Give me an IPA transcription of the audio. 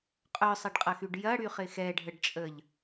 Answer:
qʼ œ sˤ ɐ ɖ qʼ ɐ x y ɖ j ɐ ɽ y χ ɪ x ɛ ɖʱ ə ɖ t͡ʃʼ ə ʎ

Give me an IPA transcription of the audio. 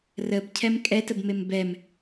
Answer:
r ə b cʰ ɛ m kʼ ɛ t ə b m e m b ɛ m

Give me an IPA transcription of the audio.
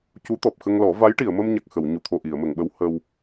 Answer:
c u˧˥ t̪ ɔ˨˩ p̚ x ə˧ ŋ l ɔ˨˩˦ v a˧˥ j ʈ i˨˩˨ ə̯ m ə˧ m ɲ a˨˩ k̚ x ə˨˩˨ w ɲ u˨˩ t̪ʰ o˨˩ ʔ i˨˩˨ ə̯ m ə˨˩˨ ŋ ɓ ə˧˥ w h ə˧ w

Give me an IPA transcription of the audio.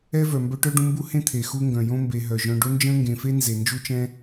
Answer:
ɛ˥ v œ˨ m b œ˦ ʈ œ˥ ɖ ũ˦ m b u˥ h ẽ˥ t̪ʰ e˩ x u˦ ŋ ɡ œ̃˩ j õ˥ m b e˨ ɦ œ˩ ʒ œ̃˨ ɖ o˥ n d͡ʒ ə̃ː˥ ŋ ɡ ẽ˨ f e˥ n z e˩ n d͡ʒ u˥ t͡ʃ ɛ̃˦

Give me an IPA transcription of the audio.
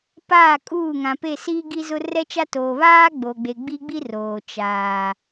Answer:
p aː˦˨ kʼ uː˦˨ ŋ ã˨ p e˦˨ s iː˦ ɡ i˦ z ʊ˦ r ɛ˦ t͡ʃ a˦ t oː˨ β aː˦ ɡ͡b o˨ ɡ͡b e˨ ɡ͡b i˦ ɡ͡b i˦ r oː˨ t͡ʃ aː˨

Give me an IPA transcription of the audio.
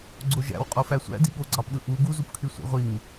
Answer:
ɡ͡ǀ o ʒ æ̰ w qʼ o f æ sʷ æ̰ d i ɠ o ɡ͡ǀ ɑ p ɗ ɯ ʔ u ɡ u z u p kʰ y sʷ ḭ ʁʷ i ŋ

